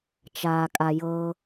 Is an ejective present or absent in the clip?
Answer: present